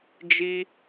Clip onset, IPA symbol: d͡ʒ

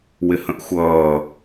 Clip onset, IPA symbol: w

